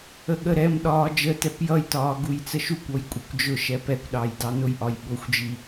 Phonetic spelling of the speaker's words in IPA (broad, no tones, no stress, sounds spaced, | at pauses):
ə ɠ ə ɾ ɛ m ɗ ɒː d͡ʒ əː t ɛ p j ʌ j t ɒː ɡ u j t͡s ə ʃ u kʷ ɔ j kʷʼ ʌ kʷ d͡ʒ ʊ ʃ ɛ p ɛ kʷ ɗ ɑ j d ɑ n ʊ j ʔ ɒ j ɓ ʊ xʷ d͡ʒ i